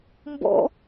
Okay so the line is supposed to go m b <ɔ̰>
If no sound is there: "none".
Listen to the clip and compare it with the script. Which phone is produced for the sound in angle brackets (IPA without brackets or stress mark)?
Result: ɔ̰